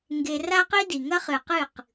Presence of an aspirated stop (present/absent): absent